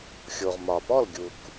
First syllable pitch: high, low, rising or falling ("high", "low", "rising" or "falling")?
low